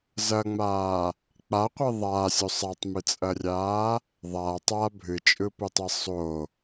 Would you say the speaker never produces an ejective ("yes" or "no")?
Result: no